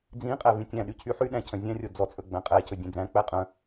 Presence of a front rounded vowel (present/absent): present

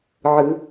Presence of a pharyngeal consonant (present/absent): present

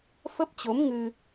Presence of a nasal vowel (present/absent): absent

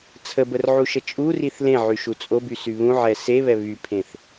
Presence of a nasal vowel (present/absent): present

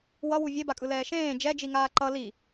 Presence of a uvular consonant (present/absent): absent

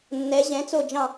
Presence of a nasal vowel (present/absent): present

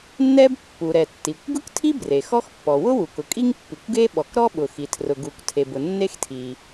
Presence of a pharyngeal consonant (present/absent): absent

